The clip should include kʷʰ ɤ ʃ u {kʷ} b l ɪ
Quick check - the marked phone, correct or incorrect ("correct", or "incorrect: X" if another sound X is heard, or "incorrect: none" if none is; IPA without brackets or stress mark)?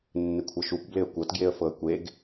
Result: correct